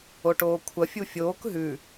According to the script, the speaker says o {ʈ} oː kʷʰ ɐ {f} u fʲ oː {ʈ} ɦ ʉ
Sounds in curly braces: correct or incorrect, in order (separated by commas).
correct, incorrect, incorrect